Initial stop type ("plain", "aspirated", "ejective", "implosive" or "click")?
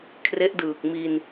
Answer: aspirated